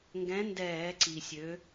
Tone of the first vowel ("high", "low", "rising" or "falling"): rising